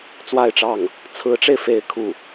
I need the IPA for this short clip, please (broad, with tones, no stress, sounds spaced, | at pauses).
t͡s w a˥˧ ɪ̯ ʈ͡ʂ ɑ˥˩ ŋ | t͡sʰ ɹ̩˧˥ ʈ͡ʂ e˧ ɪ̯ f e˧˥ ɪ̯ kʰ u˥˩